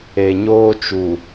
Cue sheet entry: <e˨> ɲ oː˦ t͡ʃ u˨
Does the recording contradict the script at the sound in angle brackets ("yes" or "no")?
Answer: no